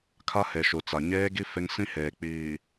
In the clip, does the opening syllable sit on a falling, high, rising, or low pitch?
high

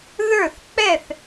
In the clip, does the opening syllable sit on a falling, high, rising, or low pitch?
falling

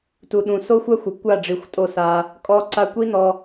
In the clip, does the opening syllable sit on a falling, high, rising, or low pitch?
low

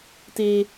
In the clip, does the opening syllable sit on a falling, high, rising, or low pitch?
high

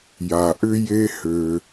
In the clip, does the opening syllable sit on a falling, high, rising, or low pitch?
low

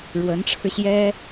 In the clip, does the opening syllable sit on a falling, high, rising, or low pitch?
rising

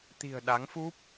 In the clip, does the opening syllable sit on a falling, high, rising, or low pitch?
low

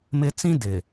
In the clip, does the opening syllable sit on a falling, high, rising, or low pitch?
high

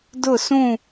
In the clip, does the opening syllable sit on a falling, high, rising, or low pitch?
falling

